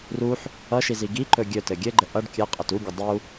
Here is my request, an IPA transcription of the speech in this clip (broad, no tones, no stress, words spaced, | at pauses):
ruħ | ʌʃizi ɡiǃɵ ɡʲɵtɘ ɡʲɘɡ͡ǃə ʔʌɖ kʲɘqʼət uɡʲə dˤu